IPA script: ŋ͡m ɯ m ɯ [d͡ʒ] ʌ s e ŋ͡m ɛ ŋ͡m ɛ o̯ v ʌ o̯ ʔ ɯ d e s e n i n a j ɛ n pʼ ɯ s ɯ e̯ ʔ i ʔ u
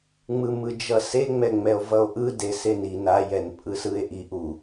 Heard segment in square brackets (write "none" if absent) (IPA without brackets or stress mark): d͡ʒ